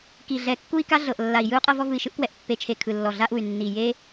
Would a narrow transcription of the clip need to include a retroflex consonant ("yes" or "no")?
no